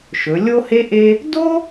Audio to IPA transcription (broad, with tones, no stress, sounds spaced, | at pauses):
ʃ ɵ˩˧ lʲ o˥ h e˥ ʔ e˥ | d o˥